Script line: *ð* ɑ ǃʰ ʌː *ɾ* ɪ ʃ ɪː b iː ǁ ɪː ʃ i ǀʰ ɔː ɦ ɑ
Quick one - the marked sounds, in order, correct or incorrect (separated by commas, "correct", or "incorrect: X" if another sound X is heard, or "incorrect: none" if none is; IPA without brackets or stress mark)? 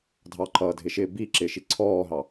incorrect: dʱ, incorrect: dʱ